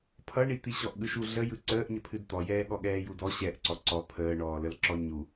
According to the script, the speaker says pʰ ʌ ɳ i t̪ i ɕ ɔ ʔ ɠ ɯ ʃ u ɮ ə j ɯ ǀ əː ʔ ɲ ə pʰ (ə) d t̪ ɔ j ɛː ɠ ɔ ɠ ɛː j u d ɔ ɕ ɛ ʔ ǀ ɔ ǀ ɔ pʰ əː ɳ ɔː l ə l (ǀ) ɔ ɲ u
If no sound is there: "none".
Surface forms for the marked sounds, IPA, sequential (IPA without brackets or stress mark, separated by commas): ɨ, ǁ